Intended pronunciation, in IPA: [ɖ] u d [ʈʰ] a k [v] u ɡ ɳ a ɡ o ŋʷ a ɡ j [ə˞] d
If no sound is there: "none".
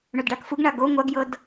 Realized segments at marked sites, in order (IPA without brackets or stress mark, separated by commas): ɳ, ɖ, f, ɤ